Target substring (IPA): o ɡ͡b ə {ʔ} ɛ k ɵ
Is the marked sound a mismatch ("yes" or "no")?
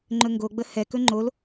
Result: yes